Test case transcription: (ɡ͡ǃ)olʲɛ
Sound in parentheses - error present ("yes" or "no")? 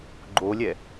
no